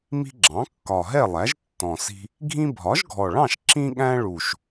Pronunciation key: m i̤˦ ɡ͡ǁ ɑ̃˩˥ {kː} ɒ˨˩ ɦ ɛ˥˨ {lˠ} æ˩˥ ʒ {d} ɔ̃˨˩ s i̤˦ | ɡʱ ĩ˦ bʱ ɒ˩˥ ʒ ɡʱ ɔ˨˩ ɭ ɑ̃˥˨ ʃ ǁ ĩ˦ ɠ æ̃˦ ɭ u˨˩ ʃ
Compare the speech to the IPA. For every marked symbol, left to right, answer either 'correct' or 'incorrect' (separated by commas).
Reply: correct, correct, incorrect